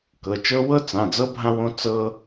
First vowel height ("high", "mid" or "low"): mid